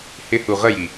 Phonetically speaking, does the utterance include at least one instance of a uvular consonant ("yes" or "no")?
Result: yes